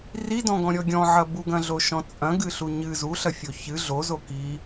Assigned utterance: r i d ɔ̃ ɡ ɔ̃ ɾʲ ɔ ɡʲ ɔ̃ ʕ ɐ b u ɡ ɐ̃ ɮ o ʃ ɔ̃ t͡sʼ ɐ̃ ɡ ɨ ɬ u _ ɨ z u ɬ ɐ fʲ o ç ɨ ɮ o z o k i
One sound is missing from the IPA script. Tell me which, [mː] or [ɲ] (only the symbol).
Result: ɲ